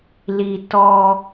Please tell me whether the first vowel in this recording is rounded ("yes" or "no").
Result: no